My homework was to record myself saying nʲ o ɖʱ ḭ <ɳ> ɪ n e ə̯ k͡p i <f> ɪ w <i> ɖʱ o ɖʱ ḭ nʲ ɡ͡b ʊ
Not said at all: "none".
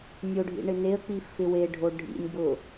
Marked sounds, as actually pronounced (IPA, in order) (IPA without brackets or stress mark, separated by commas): ɳ, f, e